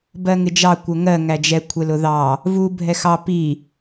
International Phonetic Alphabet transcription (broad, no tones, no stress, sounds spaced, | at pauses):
b ɜ ŋ ɪ d͡ʒ ɑ kʷ ə ŋ ɜ ŋ æ d͡ʒ ɛ kʷʰ ɛ l ʊ ð ɑ | v u bʱ ɛ x ɑ p i